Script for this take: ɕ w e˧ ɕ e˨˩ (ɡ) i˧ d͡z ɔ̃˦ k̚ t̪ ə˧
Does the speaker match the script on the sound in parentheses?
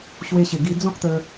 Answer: yes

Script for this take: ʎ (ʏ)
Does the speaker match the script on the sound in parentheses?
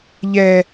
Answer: no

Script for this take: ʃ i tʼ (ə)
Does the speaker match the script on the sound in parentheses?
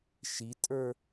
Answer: no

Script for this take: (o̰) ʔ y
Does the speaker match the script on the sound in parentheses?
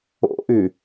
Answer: yes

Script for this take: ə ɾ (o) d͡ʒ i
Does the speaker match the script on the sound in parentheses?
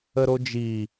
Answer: yes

